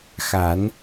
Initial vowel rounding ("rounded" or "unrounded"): unrounded